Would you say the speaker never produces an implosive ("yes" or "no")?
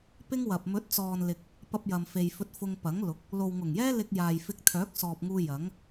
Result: yes